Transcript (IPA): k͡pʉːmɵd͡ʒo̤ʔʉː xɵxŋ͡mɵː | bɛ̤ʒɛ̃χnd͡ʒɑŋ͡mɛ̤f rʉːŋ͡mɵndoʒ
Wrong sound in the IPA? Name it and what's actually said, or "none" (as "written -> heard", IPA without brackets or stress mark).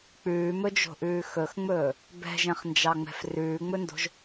o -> o̤